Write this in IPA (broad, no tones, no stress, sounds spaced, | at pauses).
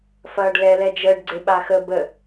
f ɐː ɖ l ɛ l ɛ d͡ʒ əː ɖ ɡ͡ǀ e ɓ a x ə b ə